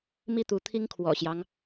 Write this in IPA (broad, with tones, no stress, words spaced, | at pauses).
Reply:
mi˥˨t̪u˨˦ t̪ʰi˦ŋkʰwɔ̰˨˩ɕjɑ˦ŋ